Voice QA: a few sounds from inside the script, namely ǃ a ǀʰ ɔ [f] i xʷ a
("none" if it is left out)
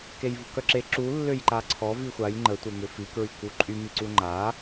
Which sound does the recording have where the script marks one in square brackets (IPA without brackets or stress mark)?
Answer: v